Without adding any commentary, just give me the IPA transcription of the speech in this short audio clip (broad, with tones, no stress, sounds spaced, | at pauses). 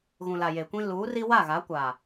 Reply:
ɣ ũ˨ l a˨ j e˨ kʷ ĩ˦ l uː˨˦ r i˦ w a˦˨ ɣ a˨˦ kʷ aː˨